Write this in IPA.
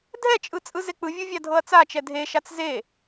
dʱ ɛ t͡ʃʼ ɯ t͡sʼ ɯ z e k͡p ɯ vʲ u vʲ a dʱ ɤ ɐ̯ t͡s a t͡ʃ ɛ dʱ e ʃ a t͡s z e

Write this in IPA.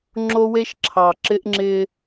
ŋ͡ǁ o˦ w e˦ ʃ ǁʰ ɑ˨ ǁ ɪ˦ ʔ ŋ͡ǁ ɪ˦

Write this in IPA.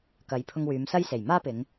k ɐ˨˧ j pʰ ʊ˧ ŋ w yː˨˧ m s ɐ˥ j s e˨˩ j m aː˥ p ɪ˨˧ ŋ

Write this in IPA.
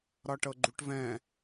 ɾ ɒ ʈ ɤ ɡ͡ǃ u ʈ v ɛ̃

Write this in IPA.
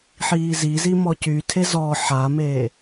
ħ iː z i z i m ɔ c y tʰ e z ɔ ħ a m eː

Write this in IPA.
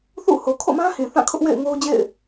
θ ṵ˦˨ h o˨ kʰ o̰˦˨ m ã˦ h ĩ˨ θ ã˦˨ kʰ ʊ˦ ʔ w ḛ˦˨ ɪ̯ ŋ o˦ ʊ̯ d͡ʑ ḛ˦˨ ɪ̯

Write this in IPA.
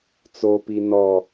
t͡s o p i n ɔ

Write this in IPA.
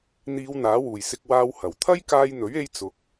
n̪ iː˨˧ w n̪ aː˨˥ w uː˨˩ j s ɪ˧ k̚ w aː˥ w h ɐ˨˩ w t̪ʰ ɐ˥ j k aː˧ j n̪ ɵ˨˥ ɥ e˧ j t͡s ʊ˨˥ k̚

